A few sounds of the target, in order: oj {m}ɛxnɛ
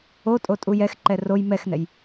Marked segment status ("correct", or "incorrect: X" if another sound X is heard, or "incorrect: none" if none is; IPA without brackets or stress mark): correct